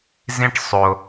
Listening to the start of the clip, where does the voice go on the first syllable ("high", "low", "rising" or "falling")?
high